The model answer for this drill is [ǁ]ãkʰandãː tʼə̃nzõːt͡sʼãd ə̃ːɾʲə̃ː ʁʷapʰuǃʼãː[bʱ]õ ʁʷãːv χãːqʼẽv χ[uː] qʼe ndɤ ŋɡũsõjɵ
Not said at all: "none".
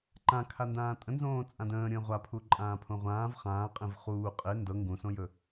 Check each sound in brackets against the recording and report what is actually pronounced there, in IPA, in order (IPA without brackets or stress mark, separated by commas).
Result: ǃ, pʰ, uː